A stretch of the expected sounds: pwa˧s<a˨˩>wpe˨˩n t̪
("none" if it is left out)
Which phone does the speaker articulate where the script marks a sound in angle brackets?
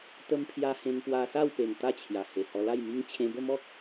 a˥˧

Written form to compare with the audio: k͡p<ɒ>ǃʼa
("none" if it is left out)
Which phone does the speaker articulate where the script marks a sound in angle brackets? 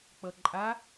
ʌ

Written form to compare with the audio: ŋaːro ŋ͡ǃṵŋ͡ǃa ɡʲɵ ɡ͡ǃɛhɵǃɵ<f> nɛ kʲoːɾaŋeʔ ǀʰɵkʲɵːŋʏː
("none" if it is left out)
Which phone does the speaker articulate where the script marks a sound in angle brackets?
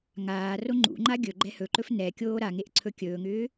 f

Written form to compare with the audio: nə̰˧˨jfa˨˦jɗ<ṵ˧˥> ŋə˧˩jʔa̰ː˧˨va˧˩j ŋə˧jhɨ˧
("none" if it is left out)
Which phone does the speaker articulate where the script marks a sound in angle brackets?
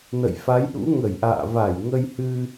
ṵ˧˥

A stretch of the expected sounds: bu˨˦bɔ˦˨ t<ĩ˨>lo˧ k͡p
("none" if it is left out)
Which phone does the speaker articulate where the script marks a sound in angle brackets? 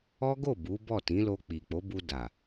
ĩ˨˦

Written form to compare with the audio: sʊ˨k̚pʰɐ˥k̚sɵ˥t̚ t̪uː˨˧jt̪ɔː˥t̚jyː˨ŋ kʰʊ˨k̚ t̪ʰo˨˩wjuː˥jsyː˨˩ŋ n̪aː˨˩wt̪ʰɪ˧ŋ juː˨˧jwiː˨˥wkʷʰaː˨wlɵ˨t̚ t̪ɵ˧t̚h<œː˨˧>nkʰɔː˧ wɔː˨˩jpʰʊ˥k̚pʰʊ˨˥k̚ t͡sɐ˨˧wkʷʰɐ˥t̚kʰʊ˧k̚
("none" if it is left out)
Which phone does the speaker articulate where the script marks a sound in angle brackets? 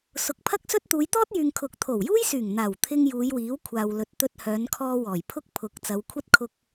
œː˨˧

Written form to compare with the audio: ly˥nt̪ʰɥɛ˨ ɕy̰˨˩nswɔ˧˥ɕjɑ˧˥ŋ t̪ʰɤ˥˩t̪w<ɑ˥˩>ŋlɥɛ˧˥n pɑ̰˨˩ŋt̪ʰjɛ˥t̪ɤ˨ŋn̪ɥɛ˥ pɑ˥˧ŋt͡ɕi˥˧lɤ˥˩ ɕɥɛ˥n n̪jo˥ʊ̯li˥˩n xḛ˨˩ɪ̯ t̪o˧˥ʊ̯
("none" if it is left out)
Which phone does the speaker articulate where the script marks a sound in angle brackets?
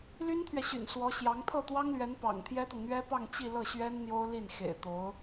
ɑ˥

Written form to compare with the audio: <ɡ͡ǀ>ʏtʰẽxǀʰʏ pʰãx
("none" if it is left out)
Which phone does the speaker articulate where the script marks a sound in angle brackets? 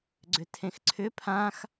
ɡ͡ǀ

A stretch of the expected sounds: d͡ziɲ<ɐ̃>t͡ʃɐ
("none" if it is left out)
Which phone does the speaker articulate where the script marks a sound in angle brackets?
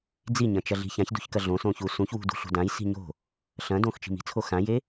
ɐ̃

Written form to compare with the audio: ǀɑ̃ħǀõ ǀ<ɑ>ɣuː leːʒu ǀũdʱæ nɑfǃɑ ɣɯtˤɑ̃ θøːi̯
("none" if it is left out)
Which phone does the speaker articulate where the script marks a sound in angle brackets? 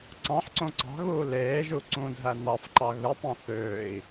ɑ̤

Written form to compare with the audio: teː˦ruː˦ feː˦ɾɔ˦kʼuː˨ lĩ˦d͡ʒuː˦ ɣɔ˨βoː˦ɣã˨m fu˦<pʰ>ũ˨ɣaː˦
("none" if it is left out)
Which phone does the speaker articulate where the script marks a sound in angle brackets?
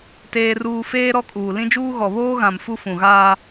f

